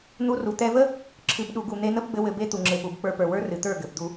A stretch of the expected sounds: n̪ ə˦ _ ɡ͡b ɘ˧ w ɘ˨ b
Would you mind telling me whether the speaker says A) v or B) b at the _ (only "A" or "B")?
B